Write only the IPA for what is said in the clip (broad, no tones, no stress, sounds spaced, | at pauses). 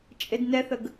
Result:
t͡ʃʼ e d n ɛ θ ə ɡ